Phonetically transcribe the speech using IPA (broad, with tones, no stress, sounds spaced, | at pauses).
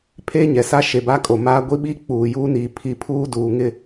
pʰ e˦ ɲ ɛ˨ s a˦ ʃ e˨ b a˦ kʼ o˨ m aː˦ ɡʷ i˦ ɓ i˦ k͡p uː˨ j uː˦ n iː˨ pʰ i˦ pʰ uː˦ d uː˨ ŋ ɪ˦